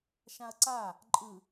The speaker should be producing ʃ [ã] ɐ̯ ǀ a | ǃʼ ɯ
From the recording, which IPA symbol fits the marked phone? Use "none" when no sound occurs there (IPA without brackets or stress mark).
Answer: ã